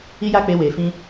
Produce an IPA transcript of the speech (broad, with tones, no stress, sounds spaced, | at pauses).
i˦ j a˦ k͡p e˧ w e˨ f ĩ˧